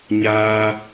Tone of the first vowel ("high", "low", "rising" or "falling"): high